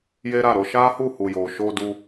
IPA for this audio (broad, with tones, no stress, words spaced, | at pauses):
je˦ɾa˦˨ɾo˧ ʃa˦hu˦˨hu˨jo˨ ʃo˧ du˧